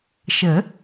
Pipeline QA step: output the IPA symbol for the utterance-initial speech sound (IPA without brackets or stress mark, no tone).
ʃ